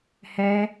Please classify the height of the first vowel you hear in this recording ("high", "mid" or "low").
mid